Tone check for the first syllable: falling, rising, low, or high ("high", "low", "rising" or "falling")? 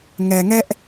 low